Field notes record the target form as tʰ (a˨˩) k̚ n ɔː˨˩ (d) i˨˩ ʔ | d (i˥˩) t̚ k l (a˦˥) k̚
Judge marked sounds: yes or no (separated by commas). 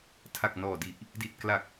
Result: yes, yes, no, no